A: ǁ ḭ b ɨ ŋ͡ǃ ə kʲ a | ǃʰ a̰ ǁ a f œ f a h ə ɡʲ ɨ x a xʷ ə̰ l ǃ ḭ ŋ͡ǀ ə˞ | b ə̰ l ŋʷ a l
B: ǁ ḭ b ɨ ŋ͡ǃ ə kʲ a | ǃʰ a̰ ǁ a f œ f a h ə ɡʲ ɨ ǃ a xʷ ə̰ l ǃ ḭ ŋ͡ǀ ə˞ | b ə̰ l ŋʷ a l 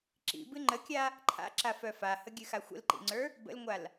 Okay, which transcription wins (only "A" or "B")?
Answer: A